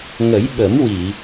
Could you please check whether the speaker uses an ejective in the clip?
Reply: no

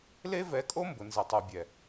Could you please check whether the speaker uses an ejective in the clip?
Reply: yes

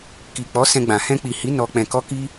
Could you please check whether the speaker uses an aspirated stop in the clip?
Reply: no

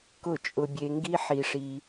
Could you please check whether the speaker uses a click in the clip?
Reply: no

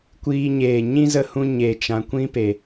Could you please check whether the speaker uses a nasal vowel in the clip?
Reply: yes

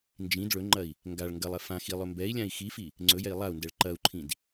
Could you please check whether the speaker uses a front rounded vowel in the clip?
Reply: no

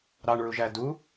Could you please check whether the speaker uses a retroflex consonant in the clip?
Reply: yes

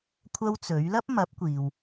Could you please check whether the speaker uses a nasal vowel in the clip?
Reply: no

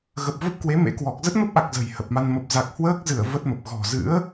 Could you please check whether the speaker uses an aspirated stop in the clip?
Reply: no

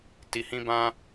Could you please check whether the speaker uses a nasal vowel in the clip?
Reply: yes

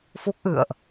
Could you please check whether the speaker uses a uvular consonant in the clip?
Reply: no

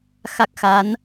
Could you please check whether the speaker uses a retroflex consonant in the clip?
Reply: no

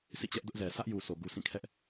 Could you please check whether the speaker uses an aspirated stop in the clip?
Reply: yes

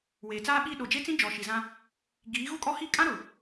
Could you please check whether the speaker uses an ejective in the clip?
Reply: yes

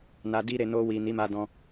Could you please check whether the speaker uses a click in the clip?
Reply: no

